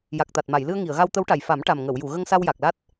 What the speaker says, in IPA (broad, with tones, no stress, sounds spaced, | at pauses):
j a˨˩ k̚ t̪ a˨˩ t̚ m a˨˩˨ j l ɨ˧ ə̯ ŋ i˨˩˨ ə̯ ɣ a˧ w t̪ ə˧˥ w ʈ a˨˩ j f a˨˩˦ m ʈ a˨˩ m ŋ ə˨˩˨ w j u˨˩˨ ɣ ə˧ ŋ s a˧ w j a˨˩ k̚ l a˦˥ t̚